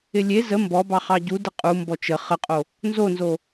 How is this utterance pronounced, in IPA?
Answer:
ɪ lʲ e z ə m b ɔ b ɑ χ ɑ ɟ u d ɪ qʼ u m b ɔ t͡ʃ ə χ ə qʼ o | n z o n z o

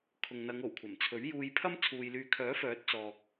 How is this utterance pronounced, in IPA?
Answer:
kʰ ʊ˨ ŋ n̪ ɐ˨˧ ŋ o˨˩ w kʷʰ ɐ˨˩ m t͡sʰ ɵ˨˥ ɥ j uː˧ j pʰ ɐ˥ m t͡sʰ uː˨ j l yː˨ kʰ œː˨˥ f œː˨˥ t̚ t͡s ɔː˧ k̚

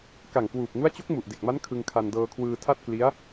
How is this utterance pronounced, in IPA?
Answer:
k a˨˩ ŋ k w uː˨˩ p̚ ŋ u˦˥ a̯ t͡ɕ o˦˥ k̚ m u˨˩ ʔ d e˨˩ k̚ m a˦˥ n kʰ ɯ˧ ŋ kʰ a˧ n d ɤː˧ kʰ w ɯː˧ tʰ a˥˩ t̚ k l i˦˥ a̯

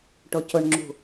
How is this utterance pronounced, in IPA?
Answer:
ʈ o c ʊ ɳ ŋ͡ǁ ṳ

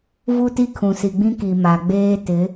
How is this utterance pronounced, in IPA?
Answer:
v u˦ t i˦ kʰ ũ˨ s i˨ ɡ͡b ĩ˦ k i˨ m a˨ ɡ͡b eː˦ t ɪ˨˦

